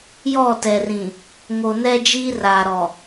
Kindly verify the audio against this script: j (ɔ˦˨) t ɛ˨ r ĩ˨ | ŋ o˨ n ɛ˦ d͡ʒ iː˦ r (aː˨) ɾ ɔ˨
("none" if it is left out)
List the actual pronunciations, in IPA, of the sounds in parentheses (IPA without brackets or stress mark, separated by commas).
ɔ˦˨, aː˨